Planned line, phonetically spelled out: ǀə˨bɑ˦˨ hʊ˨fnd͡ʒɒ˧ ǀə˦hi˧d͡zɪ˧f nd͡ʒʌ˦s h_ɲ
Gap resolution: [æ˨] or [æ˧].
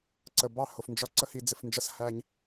æ˧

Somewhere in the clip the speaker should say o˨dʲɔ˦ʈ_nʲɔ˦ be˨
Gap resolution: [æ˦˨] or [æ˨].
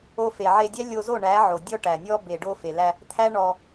æ˨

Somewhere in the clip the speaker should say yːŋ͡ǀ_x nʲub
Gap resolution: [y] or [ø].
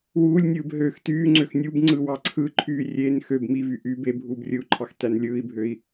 ø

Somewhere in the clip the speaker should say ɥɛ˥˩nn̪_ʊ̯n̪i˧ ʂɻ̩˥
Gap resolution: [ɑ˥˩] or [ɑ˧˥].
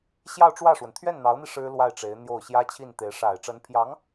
ɑ˧˥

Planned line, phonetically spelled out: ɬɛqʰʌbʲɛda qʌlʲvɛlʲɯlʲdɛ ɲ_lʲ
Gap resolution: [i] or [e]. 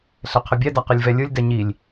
i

